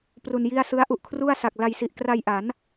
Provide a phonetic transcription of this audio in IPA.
p r u˧ n j i˥˩ a̯ s ɯ˦˥ a̯ ʔ u˨˩ ʔ kʰ r u˥˩ a̯ s a˨˩ k̚ l a˧ j s i˨˩ ʔ k r a˧ j ʔ a˩˦ n

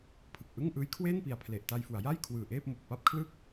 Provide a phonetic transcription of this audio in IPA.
pʰ ɯ˨˩ k̚ ʔ ɯ˥˩ ŋ ʔ ɯː˦˥ j kʰ w eː˥˩ n p i˨˩ a̯ pʰ l e˨˩ ʔ t a˧ j f u˩˦ a̯ j a˥˩ j kʰ w ɯː˨˩ ʔ eː˥˩ p̚ m o˨˩ k̚ p a˥˩ p̚ kʰ l ɯ˥˩ k̚

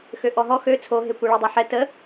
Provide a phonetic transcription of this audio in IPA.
x ø ʔ ɔ ɦ ɔ x ø t͡sʰ o ɦ e kʷ ɛ ɭ e dˤ œ ħ ɛ t ə

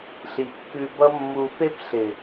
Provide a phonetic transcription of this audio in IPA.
ɬ i˨ kː ʉ˧ b ʌ˦ mː u˧ f e˦ p ɬ ɪ˨

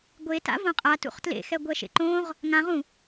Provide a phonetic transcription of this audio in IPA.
ɡʷ e t a̰ v õ qʼ a t ṵ χ t l ḛ x ɛ ɡʷ ɛ ʃ ḛ ǃ õ ʁ | ŋ ã ʁ ũ

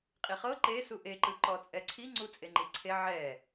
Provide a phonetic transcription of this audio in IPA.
qʼ i χ ɤ ǃ e s u ʔ e ǃ ɯ ǃ ɔ t͡sʼ ɛ ǀʰ i ŋ͡ǀ u t͡sʼ e ŋ͡ǃ i ǀʰ e ʕ ɛ

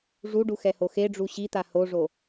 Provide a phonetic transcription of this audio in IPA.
ʐ u ɖ u x ɛ h o x e ɖ͡ʐ u ɕ i t̪ a h o ʐ o

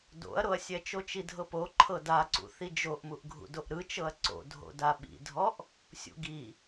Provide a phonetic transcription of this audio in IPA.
d o̰ ɐ̯ ɾ o ɐ̯ sʲ ɛ t͡ʃ o t͡ʃ i dʱ ɤ p o ǃʰ ɤ d a ǀ ṵ θ i d͡ʒ o ʔ m u ʔ ɡʱ ṵ d o ʔ ɾ ɯ t͡ʃ ɤ ɐ̯ ǀ o̰ dʱ o̰ d a ɓ ḭ dʱ ɔ ʔ | sʲ ṵ ɡ i

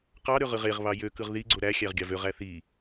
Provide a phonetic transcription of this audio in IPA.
q ɑ ɾ ø ʁ ɯ ʁ e ʁ β ɑ j ø k ɯ ʁ ð i ɡ͡ǀ o ɾ æ xʲ æ ʁ ɡʲ ɑ v ø ʁ æ θ i

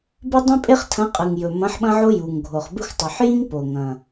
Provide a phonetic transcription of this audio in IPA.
b ɨ˦ dˤ ĩ˦ pʼ e˦ χ tʰ ɐ̃˨˥ qʼ ɨ˨˩ ŋ j ɵ˨˩ m ɐ̃˨˥ ħ ɓ ɐ̃˦ ʕ o˦ j u˨˩ ŋ ɡʱ o˨˩ χ b ɨ˦ xʷ tˤ ʉ˨˩ ħ j ĩ˦ ŋ p o˨˩ ŋ ɐ̃˨˩

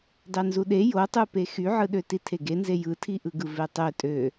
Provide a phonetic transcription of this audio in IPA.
d ɑ n z u ɗ e j o tˤ u p e x y ʕ ɯ ɗ ø t i tʰ e ɡ e n z e j ɯ tʰ i ʔ ɯ ɡ ɯ v e tˤ ø tʼ ø

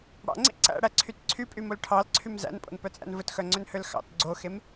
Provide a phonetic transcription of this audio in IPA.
ɽ ɑ̰ ŋ͡ǀ ḭ ǀ æ̰ ɽ æ ǀʰ y t ǀʰ y pʼ y m o l ʈʰ ɑ l ǀʰ y m z æ̰ n pʼ o̰ n p œ t͡sʼ æ̰ n v ɵ t x œ ŋ͡ǀ ø n h ø l x ɑ̰ t ɡ͡ǀ o x e m

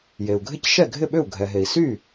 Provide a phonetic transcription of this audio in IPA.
j e˩ u̯ ɡʱ ɪ˥˩ c ʃ ɛ˥˩ ɡʱ ɪ˥˩ ɓ ʏ˥˩ u̯ ɡʱ ɛ˩ ɦ e˩ i̯ s y˥˩

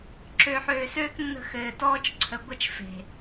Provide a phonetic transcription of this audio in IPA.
ǁ øː˨ ħ øː˨ s øː˦ k nː ə̤˧ x ɘː˨ t ɔː˦ t͡ʃ ǀʰ ə˨ ɡʷ ə˦ t͡ʃ f e̤˨

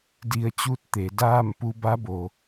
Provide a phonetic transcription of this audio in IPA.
d i˧ ə̯ t͡ɕ uː˥˨ t̚ t̪ e˩˧ d aː˥˨ m p u˧ b a˧˥ b o˩

